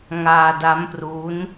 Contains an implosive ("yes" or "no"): no